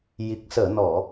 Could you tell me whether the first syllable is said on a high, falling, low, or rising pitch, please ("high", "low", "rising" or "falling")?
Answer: low